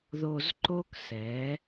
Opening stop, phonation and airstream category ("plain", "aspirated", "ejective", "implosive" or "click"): click